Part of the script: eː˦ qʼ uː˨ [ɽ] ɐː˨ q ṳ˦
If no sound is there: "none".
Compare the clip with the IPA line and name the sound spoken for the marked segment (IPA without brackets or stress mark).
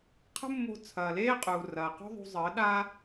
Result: r